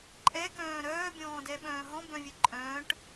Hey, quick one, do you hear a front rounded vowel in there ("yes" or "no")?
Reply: yes